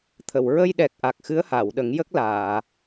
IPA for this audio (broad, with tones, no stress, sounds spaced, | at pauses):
t̪ʰ ə˨˩˨ w ɹ ə˧ j ɗ ɛ˨˩ k̚ ʔ a˨˩ k̚ x ɨ˧˥ ə̯ h a˨˩˨ w ɗ ə˨˩˦ ŋ j ə˦˥ k̚ l aː˨˩˨